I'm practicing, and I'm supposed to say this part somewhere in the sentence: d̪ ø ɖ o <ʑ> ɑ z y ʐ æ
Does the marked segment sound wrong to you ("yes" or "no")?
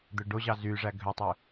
no